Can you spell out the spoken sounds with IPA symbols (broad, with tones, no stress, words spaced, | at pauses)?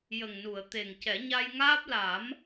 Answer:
jə˨˩ŋnu˨˩˨ə̯ t̪e˨˩ŋcɛ˨˩˦ ɲa˧jŋaː˦˥p̚ la˨˩˦m